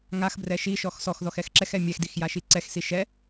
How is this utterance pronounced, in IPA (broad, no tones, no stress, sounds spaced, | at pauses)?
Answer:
ŋ a x b r ɛ ʃ i ʃ ɔ x s ɔ x ð ɔ x ɛ x ǁ ɛ x ɛ mʲ ɛ x d i x j a ʃ i ǀ ɛ x s i ʃ ɛ